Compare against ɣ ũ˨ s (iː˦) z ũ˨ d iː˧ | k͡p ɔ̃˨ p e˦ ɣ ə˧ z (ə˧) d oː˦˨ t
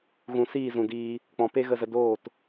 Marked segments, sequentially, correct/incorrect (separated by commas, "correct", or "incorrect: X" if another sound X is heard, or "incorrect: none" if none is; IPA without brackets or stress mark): incorrect: iː˦˨, correct